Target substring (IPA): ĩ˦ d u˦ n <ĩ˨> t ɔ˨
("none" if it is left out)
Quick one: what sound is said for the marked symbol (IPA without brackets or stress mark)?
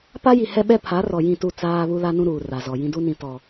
ĩ˨